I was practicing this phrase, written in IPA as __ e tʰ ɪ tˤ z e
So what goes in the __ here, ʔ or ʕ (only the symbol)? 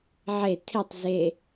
ʕ